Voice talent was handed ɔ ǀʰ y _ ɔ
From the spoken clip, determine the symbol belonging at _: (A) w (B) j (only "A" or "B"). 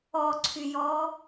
B